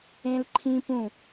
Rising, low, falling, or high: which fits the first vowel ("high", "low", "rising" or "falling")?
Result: high